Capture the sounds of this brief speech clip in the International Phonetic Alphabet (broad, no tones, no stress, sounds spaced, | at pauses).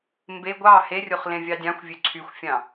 m b e ɡʷ ɑ h e rʲ o χ l ẽ vʲ ɑ dʲ ɑ̃ xʷ vʲ ø ǀʰ y xʷ fʲ ɑ̃